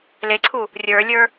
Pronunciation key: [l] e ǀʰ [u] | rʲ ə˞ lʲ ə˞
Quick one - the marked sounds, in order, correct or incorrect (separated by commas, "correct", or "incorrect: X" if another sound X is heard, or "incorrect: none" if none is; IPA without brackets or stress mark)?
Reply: correct, correct